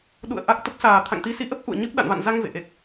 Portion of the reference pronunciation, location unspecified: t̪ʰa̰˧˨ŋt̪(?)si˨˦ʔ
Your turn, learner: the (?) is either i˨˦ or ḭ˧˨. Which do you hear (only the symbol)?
i˨˦